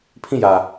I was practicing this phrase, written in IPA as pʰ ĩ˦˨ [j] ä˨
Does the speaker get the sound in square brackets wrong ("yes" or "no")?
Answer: no